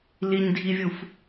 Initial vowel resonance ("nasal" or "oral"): oral